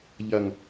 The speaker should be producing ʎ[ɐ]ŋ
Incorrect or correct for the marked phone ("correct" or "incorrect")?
correct